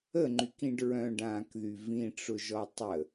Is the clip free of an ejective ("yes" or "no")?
yes